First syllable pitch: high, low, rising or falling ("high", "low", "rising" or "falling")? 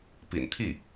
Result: low